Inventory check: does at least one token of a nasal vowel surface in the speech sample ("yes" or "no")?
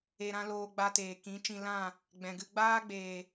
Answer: yes